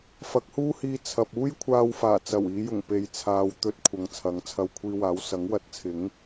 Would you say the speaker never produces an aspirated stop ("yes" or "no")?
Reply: no